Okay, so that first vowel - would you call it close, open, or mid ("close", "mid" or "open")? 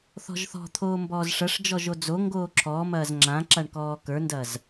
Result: mid